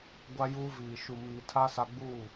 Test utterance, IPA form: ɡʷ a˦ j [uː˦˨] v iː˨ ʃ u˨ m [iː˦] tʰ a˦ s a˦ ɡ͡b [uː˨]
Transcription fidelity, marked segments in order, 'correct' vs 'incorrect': incorrect, incorrect, incorrect

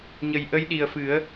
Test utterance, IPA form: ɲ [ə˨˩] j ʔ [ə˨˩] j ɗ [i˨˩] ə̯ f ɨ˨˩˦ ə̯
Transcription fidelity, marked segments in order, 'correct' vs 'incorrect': correct, incorrect, correct

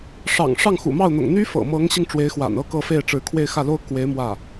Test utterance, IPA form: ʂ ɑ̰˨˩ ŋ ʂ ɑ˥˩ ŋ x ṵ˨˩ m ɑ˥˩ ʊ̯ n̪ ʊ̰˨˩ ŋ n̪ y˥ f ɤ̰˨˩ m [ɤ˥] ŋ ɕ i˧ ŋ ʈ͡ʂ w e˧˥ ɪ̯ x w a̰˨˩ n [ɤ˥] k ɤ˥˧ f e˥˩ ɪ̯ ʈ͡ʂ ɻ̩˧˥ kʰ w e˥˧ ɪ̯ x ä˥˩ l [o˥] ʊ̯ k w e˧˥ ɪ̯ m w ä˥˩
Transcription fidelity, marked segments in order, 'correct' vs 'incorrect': incorrect, correct, correct

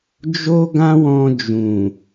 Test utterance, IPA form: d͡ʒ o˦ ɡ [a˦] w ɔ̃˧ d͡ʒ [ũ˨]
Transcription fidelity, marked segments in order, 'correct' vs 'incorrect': incorrect, correct

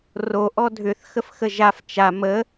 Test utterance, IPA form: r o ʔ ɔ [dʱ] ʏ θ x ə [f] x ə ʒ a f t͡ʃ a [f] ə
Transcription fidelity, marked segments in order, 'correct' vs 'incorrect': correct, correct, incorrect

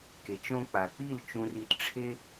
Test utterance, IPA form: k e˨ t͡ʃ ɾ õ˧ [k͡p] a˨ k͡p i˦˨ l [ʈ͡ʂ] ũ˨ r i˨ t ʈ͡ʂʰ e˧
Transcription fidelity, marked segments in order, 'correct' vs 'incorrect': correct, incorrect

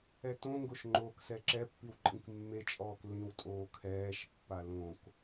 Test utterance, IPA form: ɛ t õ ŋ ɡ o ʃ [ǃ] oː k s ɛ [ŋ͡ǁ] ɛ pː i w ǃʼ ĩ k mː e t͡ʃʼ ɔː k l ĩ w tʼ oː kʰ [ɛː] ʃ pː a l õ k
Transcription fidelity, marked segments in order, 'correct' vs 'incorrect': incorrect, incorrect, correct

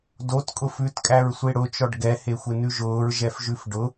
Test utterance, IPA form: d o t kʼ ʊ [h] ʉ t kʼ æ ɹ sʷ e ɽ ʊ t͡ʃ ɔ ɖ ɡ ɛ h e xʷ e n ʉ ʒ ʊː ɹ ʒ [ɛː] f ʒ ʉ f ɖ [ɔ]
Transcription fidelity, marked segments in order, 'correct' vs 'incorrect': incorrect, incorrect, incorrect

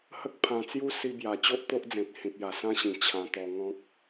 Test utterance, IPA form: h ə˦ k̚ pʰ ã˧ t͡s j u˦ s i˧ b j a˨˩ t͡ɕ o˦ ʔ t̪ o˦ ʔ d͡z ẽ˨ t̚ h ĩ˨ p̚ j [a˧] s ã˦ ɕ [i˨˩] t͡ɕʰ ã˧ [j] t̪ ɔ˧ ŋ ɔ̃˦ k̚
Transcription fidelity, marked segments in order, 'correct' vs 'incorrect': incorrect, incorrect, incorrect

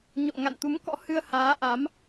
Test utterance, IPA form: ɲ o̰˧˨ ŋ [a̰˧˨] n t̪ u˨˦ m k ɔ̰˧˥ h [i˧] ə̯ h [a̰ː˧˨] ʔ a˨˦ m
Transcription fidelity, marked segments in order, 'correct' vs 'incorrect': correct, incorrect, incorrect

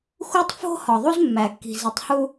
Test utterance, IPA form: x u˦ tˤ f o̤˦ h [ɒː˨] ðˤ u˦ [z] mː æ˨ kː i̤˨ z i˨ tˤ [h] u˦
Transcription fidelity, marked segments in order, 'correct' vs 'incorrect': incorrect, correct, correct

